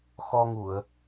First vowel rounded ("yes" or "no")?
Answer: yes